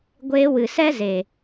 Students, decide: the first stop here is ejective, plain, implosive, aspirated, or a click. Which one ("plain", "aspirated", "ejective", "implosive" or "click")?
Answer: plain